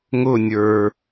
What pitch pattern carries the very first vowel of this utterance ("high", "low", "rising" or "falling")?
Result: falling